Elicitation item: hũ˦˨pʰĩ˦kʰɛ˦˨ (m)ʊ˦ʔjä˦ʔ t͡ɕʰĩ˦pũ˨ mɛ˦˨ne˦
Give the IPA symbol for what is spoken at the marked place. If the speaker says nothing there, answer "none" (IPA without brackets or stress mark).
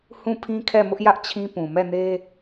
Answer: m